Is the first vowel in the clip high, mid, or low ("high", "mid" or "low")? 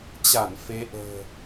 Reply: low